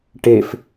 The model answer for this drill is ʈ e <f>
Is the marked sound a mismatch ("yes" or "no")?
no